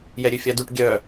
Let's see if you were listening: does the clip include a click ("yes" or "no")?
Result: no